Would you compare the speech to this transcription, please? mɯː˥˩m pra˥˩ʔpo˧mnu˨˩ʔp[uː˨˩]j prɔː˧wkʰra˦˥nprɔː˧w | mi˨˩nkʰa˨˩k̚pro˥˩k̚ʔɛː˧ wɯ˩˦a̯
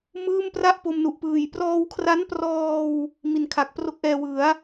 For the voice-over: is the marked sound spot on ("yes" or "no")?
no